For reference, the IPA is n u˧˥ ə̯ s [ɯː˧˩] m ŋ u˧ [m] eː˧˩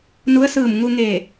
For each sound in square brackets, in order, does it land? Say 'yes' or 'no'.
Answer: yes, no

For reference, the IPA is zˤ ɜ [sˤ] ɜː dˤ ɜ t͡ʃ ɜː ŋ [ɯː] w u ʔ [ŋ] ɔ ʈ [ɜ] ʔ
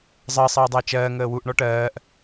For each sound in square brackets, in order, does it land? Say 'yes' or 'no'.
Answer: yes, no, no, no

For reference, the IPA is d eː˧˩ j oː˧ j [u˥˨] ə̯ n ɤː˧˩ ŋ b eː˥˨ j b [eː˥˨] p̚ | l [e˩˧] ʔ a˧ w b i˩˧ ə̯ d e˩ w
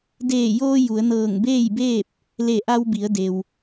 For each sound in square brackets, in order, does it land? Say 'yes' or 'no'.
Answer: no, yes, no

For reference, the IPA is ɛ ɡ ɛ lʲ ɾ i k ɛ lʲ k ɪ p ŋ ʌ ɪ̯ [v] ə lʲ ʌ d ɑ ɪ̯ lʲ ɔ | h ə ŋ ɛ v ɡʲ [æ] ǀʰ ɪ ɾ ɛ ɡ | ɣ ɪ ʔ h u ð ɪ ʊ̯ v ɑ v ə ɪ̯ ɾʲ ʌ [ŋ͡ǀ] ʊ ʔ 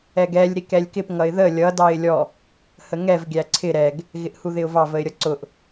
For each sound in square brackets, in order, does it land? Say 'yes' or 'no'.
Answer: no, yes, no

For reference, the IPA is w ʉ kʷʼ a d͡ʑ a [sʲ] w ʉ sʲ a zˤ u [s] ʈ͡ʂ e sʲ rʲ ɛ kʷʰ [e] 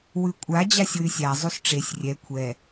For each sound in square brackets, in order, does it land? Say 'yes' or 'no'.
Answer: yes, yes, no

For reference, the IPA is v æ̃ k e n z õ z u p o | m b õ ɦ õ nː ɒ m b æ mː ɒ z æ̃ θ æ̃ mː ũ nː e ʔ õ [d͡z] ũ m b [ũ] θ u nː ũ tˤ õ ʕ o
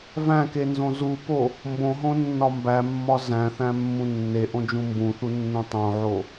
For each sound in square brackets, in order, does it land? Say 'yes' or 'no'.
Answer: no, yes

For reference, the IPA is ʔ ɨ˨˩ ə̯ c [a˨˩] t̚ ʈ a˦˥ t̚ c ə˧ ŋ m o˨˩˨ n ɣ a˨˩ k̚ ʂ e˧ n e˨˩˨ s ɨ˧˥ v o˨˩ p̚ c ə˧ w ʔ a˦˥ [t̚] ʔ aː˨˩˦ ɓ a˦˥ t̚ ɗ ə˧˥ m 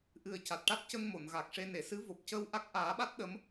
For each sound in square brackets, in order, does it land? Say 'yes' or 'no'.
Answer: yes, no

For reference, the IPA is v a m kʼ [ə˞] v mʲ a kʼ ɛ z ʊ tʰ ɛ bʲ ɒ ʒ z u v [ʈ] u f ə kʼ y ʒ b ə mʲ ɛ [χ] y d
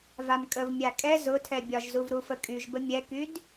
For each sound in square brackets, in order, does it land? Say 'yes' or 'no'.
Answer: no, no, no

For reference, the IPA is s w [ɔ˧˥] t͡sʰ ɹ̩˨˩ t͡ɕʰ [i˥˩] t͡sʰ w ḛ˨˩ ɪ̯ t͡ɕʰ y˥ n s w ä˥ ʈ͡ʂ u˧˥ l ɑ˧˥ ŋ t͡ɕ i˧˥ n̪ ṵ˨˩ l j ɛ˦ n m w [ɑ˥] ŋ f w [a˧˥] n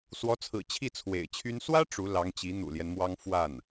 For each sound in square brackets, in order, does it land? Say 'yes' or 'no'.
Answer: yes, yes, yes, no

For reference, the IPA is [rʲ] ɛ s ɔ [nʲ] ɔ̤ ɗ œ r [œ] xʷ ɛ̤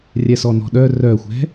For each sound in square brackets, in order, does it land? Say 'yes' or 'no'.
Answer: yes, no, yes

